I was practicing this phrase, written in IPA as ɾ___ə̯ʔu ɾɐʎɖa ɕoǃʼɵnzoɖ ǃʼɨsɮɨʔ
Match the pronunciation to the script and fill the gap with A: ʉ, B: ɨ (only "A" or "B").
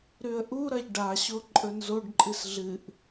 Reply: A